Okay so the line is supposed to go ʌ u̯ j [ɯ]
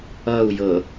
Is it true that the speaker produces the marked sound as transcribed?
no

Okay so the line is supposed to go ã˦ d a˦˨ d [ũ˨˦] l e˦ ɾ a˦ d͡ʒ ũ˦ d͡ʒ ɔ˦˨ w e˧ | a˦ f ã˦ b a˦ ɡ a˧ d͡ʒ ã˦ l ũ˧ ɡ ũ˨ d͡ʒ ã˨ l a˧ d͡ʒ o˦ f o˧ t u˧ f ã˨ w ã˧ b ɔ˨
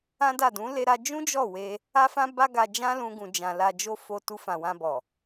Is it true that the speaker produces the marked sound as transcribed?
yes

